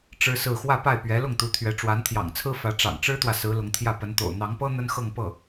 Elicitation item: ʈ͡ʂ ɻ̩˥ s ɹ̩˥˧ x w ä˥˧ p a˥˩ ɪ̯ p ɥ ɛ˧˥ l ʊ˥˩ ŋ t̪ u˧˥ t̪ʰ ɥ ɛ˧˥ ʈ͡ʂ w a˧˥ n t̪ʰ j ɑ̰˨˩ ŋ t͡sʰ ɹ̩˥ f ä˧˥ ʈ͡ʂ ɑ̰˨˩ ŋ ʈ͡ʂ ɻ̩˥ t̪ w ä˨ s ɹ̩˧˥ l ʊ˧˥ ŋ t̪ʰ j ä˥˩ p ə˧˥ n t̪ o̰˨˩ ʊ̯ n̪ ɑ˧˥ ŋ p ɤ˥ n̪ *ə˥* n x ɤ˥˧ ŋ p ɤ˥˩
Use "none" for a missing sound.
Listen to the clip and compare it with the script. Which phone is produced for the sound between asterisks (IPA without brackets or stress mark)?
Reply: ə˥